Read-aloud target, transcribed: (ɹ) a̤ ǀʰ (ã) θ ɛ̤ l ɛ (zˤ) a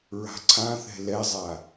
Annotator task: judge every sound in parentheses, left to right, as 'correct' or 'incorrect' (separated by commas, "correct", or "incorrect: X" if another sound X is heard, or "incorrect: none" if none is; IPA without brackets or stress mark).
correct, correct, correct